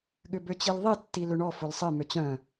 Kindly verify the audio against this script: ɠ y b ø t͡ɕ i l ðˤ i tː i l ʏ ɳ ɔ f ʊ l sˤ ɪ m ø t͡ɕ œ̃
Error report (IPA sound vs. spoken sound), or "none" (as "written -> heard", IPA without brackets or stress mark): y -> ʏ